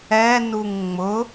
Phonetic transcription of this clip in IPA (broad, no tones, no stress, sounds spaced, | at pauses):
ɛ n u ŋ ŋ͡m ʊ